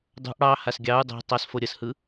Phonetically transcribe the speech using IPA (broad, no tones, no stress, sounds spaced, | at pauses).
dˤ o̤ ʔ ɽ ɑ h a s ɡʲ ɑ u̯ dˤ o̤ tˤ ɑ s f o ɾʲ ə s h ɯ